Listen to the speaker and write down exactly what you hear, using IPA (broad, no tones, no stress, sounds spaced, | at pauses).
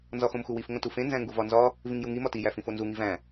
n z ɒ x õ m x u w i f ŋ õ t u f ẽ n z æ̃ ŋ ɡ u v ɒ n z ɒ | v ĩ ŋ j u ŋ i m ɒ t i j æ f ĩ f o n z u ŋ i v æ̃